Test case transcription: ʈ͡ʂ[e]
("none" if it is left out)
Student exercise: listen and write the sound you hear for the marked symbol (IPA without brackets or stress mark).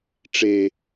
e